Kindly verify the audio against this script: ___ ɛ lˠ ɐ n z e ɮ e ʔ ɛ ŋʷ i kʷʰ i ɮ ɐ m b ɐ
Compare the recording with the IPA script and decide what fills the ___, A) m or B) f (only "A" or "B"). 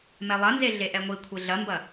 A